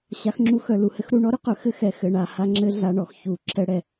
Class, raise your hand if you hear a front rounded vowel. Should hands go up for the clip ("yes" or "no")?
yes